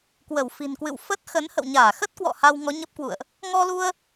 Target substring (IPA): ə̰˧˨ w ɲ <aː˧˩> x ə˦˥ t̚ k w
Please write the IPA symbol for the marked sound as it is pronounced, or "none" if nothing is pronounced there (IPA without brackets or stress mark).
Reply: aː˧˩